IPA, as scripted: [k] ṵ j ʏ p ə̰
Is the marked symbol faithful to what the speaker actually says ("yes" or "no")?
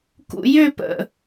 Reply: yes